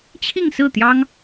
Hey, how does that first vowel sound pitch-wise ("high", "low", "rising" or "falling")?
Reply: falling